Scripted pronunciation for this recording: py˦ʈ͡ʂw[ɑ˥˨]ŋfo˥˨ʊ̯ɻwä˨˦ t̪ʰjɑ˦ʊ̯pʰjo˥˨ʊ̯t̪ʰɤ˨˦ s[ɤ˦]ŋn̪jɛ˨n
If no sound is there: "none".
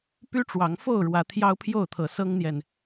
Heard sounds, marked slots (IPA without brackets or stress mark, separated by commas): ɑ˨˦, ɤ˦